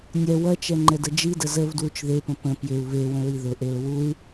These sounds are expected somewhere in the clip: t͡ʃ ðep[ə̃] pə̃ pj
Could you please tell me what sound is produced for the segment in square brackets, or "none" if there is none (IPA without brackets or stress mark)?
ə̃